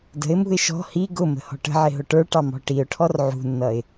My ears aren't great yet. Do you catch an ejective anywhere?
no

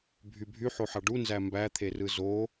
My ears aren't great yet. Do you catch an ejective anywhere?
no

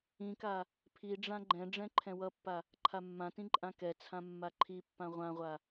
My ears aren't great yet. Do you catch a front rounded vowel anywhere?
no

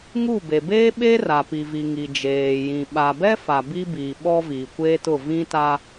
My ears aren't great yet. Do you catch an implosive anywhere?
yes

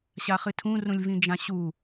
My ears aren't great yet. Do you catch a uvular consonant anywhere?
yes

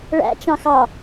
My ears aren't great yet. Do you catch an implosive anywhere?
no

